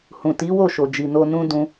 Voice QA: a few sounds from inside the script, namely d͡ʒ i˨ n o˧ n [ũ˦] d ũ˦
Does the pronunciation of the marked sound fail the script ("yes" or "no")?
no